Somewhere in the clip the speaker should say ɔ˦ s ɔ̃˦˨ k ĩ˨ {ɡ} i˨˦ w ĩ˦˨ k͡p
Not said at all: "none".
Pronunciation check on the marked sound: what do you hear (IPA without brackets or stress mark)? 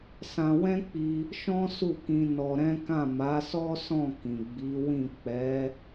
ɡ͡b